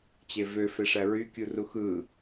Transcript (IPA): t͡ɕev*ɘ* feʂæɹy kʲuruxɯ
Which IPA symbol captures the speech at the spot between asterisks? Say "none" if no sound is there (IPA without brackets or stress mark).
ø